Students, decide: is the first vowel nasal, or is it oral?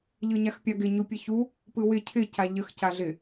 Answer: oral